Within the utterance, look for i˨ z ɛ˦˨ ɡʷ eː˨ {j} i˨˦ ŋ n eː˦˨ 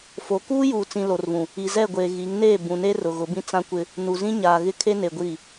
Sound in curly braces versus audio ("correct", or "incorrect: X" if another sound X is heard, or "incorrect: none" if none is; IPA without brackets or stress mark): incorrect: ɣ